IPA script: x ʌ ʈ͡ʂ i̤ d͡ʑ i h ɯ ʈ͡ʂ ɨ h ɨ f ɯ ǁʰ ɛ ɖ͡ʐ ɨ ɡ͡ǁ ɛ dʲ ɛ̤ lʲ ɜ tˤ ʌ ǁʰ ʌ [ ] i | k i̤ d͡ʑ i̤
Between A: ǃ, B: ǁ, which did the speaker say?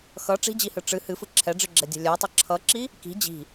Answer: B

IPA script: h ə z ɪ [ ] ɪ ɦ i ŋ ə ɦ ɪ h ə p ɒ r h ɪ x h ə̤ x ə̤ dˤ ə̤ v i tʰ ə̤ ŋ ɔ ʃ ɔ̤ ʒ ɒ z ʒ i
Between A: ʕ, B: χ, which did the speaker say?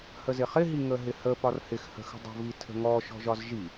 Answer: B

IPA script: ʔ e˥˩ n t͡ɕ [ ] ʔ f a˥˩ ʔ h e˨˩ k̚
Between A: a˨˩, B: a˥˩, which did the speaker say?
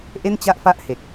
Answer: B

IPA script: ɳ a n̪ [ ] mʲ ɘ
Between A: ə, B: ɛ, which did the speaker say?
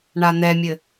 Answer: B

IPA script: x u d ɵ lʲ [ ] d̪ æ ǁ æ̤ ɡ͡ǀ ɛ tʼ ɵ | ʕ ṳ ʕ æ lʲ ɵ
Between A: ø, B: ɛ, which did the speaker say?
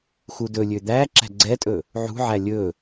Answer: A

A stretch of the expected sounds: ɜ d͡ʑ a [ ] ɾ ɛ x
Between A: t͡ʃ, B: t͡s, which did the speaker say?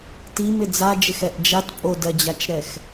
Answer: A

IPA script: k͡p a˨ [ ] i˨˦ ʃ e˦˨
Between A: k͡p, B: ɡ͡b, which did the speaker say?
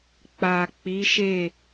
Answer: A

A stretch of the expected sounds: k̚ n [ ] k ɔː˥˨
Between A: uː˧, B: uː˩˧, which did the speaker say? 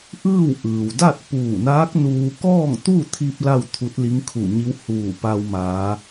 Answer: A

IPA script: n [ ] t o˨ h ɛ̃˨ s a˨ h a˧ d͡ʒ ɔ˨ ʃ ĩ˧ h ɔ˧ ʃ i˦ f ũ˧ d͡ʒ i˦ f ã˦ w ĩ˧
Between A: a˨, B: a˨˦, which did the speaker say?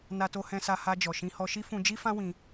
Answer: A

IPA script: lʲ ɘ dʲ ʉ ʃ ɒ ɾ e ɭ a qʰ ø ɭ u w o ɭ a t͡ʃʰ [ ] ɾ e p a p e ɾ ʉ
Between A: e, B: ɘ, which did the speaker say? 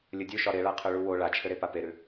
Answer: B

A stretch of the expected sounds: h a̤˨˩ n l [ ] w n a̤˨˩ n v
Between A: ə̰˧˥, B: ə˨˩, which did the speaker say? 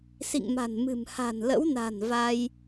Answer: A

